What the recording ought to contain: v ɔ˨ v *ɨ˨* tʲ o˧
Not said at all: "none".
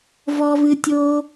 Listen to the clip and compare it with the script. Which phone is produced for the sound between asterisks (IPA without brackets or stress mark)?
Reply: ɨ˨